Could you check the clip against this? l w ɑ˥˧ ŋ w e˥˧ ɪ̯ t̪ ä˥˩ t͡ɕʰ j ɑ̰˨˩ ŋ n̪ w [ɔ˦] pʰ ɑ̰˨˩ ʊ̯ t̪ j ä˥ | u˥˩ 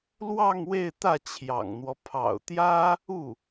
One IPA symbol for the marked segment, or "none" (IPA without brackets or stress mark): ɔ˦